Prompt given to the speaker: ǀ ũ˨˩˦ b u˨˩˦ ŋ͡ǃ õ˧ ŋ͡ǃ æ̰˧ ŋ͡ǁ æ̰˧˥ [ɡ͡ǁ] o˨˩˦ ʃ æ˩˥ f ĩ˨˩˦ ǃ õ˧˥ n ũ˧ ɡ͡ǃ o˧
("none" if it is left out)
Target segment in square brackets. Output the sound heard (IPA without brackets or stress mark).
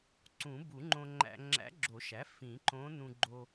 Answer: ɡ͡ǁ